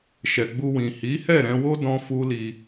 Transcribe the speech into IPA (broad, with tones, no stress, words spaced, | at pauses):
ʃɛ˨ɡ͡bu˧wĩ˨ hi˨˦hɛ˦˨ɾɛ̃˧wo˦ dɔ̃˦fu˦li˧